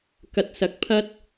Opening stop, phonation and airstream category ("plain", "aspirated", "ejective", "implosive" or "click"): plain